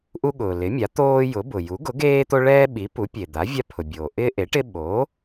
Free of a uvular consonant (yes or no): yes